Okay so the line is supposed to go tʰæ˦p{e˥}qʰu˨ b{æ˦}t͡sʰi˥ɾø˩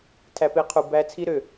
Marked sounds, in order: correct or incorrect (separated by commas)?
correct, correct